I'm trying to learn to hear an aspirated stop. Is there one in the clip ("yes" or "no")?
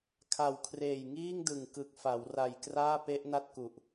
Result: yes